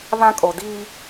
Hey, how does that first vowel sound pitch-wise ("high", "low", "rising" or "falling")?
high